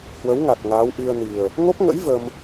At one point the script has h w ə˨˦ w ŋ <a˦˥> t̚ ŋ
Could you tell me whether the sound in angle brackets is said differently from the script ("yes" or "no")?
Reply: yes